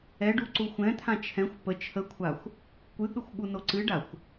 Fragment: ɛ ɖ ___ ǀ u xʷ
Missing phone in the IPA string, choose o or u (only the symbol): u